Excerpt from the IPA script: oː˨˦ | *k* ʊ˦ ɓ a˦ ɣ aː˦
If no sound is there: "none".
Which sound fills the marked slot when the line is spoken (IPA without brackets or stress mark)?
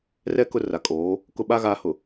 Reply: k